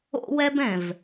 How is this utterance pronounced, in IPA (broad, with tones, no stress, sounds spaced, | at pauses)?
o̰˦ w ɛ˦ b ɛ̃˨ v